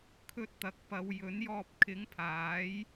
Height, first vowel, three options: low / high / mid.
mid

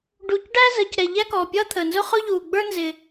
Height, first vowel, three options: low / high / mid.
high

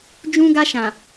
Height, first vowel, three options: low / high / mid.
high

